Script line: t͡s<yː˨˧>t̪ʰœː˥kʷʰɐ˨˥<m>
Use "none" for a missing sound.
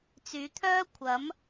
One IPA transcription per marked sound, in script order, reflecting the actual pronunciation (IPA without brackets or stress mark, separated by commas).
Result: yː˨˧, m